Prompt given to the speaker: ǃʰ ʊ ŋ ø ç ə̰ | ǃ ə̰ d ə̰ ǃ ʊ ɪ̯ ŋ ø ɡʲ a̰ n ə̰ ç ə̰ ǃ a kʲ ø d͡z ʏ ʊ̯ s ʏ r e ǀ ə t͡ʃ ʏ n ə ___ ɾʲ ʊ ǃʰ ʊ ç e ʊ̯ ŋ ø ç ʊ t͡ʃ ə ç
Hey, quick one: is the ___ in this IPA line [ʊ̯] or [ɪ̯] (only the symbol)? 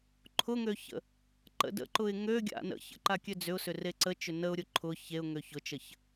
ʊ̯